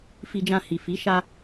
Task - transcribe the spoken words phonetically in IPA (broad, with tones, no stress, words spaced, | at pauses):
fi˧d͡ʒã˧ hi˨fi˨˦ ʃa˧